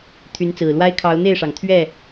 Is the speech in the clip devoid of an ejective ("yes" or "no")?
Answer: yes